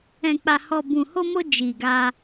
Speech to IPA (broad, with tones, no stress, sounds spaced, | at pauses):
ɛ̃˨ k͡p a˨ h ɔ˨ b ũ˨ h o˧ m o˧ d͡ʒ i˨ ɡ a˧